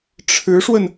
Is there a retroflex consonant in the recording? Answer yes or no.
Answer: yes